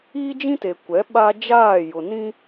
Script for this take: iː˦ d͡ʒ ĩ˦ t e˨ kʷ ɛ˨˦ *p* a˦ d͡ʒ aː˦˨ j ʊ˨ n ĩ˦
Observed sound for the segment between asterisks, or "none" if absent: ɓ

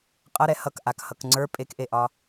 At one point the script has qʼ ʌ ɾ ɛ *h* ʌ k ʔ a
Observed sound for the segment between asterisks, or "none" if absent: h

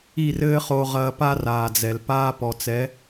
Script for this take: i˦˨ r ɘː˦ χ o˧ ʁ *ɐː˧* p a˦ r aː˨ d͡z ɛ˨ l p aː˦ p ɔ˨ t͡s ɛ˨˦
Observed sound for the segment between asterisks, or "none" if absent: ɐː˧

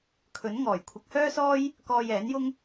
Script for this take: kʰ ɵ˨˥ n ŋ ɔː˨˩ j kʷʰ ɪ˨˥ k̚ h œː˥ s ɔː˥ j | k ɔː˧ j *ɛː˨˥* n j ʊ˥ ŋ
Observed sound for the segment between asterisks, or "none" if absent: ɛː˨˥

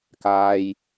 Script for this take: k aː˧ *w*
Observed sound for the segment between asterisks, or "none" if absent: j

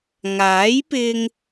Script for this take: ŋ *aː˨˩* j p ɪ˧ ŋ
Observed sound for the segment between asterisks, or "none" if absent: aː˨˥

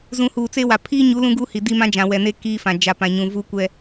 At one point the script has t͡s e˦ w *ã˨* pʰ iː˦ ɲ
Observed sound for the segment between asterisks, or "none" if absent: a˨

